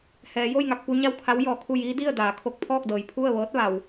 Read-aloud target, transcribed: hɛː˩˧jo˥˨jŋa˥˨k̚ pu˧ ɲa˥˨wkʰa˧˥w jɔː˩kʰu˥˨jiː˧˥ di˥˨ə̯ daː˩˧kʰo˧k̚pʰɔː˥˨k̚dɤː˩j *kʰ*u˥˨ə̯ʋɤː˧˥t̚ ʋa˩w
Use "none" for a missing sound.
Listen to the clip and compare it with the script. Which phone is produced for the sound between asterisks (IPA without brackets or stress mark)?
pʰ